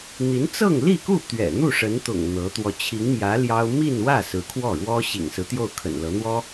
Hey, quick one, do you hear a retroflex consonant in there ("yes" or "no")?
yes